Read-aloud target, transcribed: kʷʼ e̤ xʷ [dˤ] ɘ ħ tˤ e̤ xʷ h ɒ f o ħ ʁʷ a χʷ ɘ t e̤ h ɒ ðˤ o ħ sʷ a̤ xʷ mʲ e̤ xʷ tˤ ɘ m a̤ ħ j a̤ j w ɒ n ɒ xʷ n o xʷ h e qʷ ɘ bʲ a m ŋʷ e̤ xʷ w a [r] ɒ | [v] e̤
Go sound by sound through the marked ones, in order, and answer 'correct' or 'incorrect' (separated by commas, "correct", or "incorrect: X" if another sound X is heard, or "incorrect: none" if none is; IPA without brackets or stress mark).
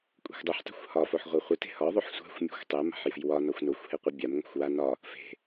correct, incorrect: n, incorrect: f